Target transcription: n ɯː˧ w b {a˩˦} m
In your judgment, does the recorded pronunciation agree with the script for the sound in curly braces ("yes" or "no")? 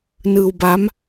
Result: no